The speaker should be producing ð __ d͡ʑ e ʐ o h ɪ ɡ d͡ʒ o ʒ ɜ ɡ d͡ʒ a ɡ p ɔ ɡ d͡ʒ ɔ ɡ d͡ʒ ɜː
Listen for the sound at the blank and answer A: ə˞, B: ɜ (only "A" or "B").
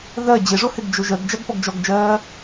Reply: B